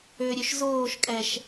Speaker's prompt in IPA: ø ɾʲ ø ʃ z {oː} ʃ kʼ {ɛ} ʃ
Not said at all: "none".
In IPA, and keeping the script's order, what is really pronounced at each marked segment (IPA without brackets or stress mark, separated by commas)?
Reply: oː, ɛ